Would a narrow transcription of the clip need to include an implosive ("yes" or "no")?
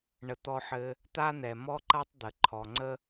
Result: no